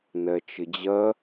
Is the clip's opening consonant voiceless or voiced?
voiced